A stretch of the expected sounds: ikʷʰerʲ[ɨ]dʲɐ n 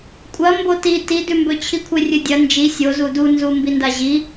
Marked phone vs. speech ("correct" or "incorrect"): correct